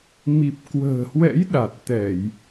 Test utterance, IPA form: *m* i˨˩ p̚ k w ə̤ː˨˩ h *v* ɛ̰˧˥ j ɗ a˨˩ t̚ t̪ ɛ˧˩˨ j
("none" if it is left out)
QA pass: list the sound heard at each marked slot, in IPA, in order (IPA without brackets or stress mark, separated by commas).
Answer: m, w